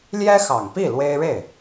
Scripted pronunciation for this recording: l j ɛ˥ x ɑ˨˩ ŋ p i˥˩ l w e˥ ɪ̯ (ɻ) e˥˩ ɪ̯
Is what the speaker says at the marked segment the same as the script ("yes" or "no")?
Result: yes